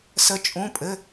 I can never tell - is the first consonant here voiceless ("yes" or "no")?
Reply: yes